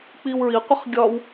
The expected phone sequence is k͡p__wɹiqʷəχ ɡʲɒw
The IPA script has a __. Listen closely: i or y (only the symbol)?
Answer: i